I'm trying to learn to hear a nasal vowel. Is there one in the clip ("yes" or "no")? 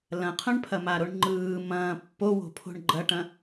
yes